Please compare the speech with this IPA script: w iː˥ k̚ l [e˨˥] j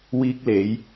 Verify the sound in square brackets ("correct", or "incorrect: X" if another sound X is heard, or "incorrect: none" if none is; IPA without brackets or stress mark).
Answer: correct